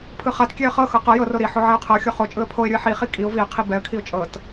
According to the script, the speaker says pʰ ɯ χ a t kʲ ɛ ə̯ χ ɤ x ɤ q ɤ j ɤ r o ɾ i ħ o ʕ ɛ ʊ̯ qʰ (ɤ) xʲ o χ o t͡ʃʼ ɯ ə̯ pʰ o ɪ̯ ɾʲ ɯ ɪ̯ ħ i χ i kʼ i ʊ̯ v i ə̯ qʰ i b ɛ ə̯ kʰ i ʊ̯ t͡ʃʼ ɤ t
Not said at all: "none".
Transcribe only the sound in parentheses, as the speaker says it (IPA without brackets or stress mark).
ɤ